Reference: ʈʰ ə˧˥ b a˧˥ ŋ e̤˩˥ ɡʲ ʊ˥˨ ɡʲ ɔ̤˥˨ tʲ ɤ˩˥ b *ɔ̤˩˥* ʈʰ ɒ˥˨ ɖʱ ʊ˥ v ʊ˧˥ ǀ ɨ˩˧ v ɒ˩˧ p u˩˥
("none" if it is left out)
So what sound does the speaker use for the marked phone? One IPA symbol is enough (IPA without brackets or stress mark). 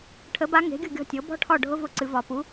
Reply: ɔ̤˥